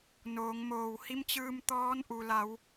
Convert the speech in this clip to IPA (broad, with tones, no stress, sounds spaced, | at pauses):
n oː˩˧ ŋ m oː˧˩ w h i˧˥ m t͡ɕ ɯː˧ m t̪ ɔː˧˥ n ʔ u˩ l a˩˧ w